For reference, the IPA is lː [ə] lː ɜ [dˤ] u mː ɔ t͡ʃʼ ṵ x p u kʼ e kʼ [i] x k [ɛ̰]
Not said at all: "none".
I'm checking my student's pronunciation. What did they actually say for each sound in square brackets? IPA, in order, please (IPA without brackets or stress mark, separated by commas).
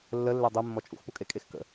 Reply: ə, dˤ, e, ə̰